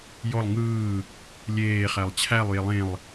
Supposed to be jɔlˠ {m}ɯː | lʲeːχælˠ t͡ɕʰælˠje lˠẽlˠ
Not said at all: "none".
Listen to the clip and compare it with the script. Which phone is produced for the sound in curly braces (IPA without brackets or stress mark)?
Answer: ŋ